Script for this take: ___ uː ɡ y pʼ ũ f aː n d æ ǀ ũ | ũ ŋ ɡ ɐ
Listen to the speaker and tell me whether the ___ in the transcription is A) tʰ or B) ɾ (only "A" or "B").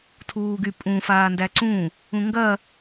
A